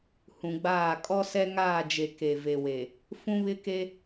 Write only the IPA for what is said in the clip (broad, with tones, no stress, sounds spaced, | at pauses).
h ũ˨ ɡ͡b aː˦˨ kʼ ɔ˦ s ɛ˦ ŋ aː˦˨ d͡ʒ e˨ k e˨ v e˨ w e˨ | f ũ˦ β ɪ˦ k e˦